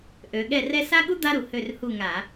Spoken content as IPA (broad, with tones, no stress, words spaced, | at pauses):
ʔø˩˧ɠɛ˦˨rɛ˥ sa˥ɠu˥ d̪a˥ɾu˩˧ hø˦˨rhu˦˨ŋa˧˩˧